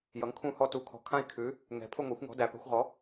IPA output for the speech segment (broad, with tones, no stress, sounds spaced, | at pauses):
j ʌ˨˥ ŋ kʰ ũ˥˧ h ɔ˥˧ t u˨˥ kʰ ɔ̤˨˥ kʰ ã˥˧ i̯ kʰ ʉ˨˥ | ŋ ɛ̤˨˥ pʰ ʊ˥˧ ŋʷ a˨˥ xʷ ŋ ɔ̤˨˥ d æ˨˥ p ɛ̤˨˥ xʷ ʁ ɔ˨˥